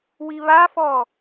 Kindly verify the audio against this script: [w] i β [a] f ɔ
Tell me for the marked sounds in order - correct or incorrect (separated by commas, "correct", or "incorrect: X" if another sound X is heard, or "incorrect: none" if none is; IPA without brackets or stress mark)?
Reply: correct, correct